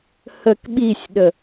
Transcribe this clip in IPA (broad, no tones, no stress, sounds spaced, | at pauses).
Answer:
h ə k ɓ i sʲ ɗ ə